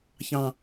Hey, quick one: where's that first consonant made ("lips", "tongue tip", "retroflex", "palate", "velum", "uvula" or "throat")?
palate